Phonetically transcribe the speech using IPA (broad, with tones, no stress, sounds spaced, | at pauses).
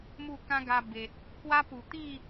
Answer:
m u˥˧ k ã˦ ɡ a˧ b e˨ t̚ | k w a˦ p u˨˩ t̪ i˥˧